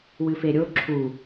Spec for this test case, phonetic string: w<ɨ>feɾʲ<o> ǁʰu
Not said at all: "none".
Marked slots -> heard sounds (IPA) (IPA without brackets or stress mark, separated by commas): ɨ, o